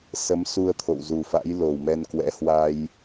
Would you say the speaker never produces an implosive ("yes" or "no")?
yes